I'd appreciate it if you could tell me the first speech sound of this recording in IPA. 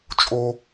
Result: t͡ʃʼ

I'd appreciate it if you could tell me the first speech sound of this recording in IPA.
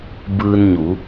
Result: b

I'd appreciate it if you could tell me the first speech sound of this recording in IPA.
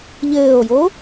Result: ʎ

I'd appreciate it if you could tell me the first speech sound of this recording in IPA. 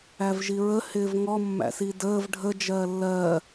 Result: æ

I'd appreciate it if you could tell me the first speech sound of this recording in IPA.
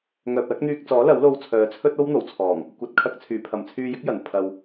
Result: ŋ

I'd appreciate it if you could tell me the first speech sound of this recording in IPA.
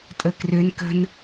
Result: tʼ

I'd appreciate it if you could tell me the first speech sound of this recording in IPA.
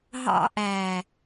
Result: ɦ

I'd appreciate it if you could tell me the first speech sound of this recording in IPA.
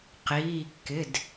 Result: q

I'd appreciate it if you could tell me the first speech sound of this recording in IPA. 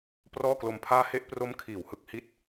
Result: p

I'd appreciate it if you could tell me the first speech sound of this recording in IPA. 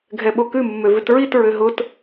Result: ɡʱ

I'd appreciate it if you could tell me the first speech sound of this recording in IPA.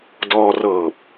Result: d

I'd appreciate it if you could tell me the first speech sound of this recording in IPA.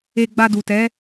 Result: e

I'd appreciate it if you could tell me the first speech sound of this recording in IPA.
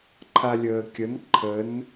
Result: ǃʰ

